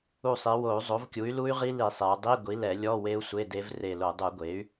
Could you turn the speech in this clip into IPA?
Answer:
u˧˩ sˤ i˩˧ w o˧˩˧ u̯ zˤ o˩˥ v kʲ u˩˥ y̯ l u˦˥ y̯ ʁ i˦˥ l i˧˩˧ sˤ e˩˧ u̯ dˤ i˧˥˧ ɡʷ i˩˥ l ɛ˧˩˧ lʲ ɔ˧˥˧ w e˦˥ u̯ sʷ e˧˥˧ d e˦˥ v r e˧˩ l o˧˩˧ dˤ u˧˩˧ ɡʷ e˩˥ y̯

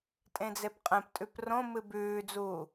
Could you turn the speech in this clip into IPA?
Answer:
tʼ ẽ d͡z e p qʼ ẽ p tʼ ʉ p r õ m ɨ b ʉː d͡z uː

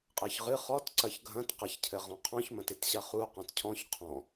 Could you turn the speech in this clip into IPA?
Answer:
qʼ ɘ ç ʁ ɨ χ ɔ t ǀ ɐ ç ɡʱ ɐ̃ t q ɐ ç cʰ ɘ ʁ ɔ̃ qʰ ɔ̃ ç m ɐ̃ t e t ɕ ɐ χ u q ɔ̃ t cʰ ɔ̃ ç qʰ ɔ̃

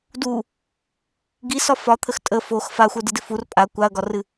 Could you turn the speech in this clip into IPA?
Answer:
d u | ɡ i s ɒ f ɒ t̪ʰ ə x tʼ ə f o x f a xʷ ə˞ d ɨ d ɪ f u r pʼ a kʷ a ɐ̯ ɡ ɒ r ɨ

